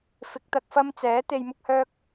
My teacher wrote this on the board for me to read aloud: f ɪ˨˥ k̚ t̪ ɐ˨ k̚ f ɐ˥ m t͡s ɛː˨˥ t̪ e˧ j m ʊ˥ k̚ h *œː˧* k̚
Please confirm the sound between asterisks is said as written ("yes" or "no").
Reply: no